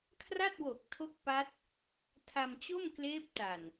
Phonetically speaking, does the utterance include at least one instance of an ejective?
no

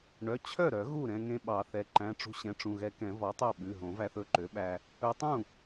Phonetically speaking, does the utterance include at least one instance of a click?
yes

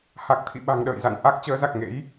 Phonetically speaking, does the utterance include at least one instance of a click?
no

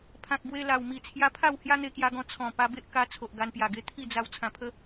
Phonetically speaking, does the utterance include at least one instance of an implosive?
no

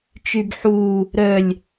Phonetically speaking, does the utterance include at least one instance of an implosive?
no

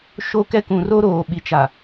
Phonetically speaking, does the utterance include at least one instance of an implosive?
yes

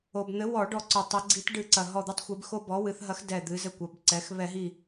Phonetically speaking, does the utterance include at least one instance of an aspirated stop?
no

